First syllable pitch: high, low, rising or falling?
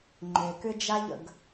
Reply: low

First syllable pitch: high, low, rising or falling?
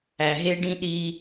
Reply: low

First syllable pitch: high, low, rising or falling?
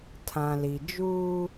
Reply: low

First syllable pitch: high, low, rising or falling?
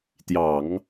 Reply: low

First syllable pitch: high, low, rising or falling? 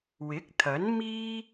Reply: rising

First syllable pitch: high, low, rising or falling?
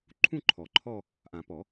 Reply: falling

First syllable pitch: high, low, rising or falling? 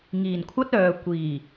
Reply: low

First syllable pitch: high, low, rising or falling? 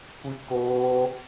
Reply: high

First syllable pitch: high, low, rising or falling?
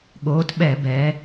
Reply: rising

